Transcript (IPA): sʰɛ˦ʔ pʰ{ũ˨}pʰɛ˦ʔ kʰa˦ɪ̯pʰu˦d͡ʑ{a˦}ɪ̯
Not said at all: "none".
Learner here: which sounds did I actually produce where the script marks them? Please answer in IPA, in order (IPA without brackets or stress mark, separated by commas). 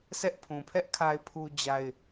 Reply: ũ˨, a˦